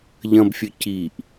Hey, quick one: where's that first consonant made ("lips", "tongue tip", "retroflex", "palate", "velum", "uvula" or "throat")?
palate